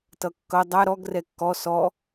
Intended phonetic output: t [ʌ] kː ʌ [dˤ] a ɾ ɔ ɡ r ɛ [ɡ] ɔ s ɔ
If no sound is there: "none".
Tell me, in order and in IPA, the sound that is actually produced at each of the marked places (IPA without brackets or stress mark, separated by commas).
ʌ, dˤ, kː